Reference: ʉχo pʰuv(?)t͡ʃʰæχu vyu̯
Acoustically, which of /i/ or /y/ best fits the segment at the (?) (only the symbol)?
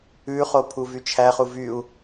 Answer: y